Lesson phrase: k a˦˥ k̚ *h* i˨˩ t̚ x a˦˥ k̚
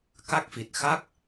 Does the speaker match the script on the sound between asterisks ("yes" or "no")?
no